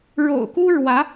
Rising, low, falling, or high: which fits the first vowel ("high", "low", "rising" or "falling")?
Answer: low